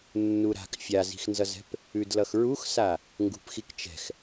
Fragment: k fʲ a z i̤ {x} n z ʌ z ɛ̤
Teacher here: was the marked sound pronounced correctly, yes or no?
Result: yes